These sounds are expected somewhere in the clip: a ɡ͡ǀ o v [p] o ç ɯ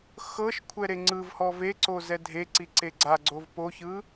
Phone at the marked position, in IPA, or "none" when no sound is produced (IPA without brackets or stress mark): p